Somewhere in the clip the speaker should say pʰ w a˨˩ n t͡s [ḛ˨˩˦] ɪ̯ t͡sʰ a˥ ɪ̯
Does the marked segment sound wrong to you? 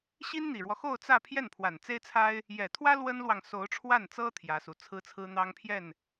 yes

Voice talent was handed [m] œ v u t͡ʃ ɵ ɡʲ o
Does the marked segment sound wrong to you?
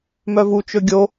no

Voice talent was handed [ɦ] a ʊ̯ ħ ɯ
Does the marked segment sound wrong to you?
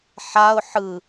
yes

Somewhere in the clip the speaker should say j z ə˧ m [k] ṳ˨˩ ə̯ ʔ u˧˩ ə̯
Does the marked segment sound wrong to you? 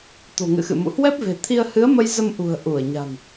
yes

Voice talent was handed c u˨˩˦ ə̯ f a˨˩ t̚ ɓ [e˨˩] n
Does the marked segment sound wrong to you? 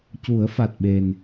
no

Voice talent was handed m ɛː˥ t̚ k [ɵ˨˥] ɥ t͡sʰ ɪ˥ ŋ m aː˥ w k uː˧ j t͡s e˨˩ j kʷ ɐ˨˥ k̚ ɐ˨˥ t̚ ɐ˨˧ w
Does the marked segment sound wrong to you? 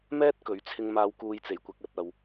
no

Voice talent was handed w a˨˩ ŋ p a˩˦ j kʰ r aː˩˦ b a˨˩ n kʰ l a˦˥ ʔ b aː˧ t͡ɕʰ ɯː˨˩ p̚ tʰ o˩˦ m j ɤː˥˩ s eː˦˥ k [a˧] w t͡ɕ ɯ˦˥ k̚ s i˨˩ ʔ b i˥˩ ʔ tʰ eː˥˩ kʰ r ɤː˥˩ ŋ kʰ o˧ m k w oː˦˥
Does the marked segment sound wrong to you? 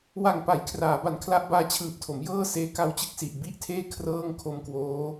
yes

